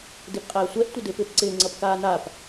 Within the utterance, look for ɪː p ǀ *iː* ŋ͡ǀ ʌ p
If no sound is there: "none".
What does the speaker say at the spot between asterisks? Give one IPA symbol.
ɪː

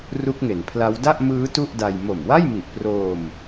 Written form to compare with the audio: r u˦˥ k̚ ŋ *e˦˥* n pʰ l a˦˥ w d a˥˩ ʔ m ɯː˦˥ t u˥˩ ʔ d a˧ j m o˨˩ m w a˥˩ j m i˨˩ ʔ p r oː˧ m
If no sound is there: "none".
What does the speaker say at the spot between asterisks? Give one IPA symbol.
e˩˦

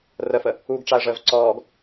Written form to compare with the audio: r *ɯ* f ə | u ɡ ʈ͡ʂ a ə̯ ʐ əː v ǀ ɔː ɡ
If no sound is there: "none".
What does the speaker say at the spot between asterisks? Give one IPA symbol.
ə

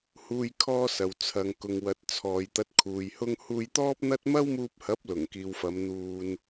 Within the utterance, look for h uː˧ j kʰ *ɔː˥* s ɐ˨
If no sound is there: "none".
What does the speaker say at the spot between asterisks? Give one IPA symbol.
ɔː˥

